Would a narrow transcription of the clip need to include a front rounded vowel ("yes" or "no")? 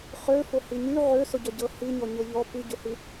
yes